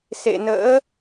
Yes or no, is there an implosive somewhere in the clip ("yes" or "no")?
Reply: no